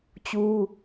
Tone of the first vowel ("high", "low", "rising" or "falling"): high